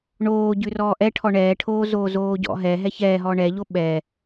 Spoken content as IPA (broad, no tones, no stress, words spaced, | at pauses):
ɳoː ɟʉrɔːʔɛʈʰɔ ɳɛːʈʰoːzoː zoːɟɔ̰ɦɛ ɦɛçɛːɦɔ ɳɛʎo ɓɛ